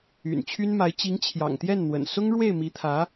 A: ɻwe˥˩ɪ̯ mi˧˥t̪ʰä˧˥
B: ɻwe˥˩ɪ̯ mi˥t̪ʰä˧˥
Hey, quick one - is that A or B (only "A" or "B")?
A